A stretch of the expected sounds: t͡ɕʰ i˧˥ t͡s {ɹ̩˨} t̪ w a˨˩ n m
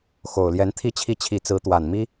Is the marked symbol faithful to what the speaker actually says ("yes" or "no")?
no